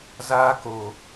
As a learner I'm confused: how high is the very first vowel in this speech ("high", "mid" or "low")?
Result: low